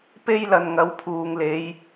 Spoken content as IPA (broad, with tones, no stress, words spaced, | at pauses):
pe˥jlɐ˧nŋɐ˨˥w pʰuː˨ŋle˨˧j